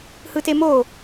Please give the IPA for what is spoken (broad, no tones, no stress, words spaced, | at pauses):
hɯtemo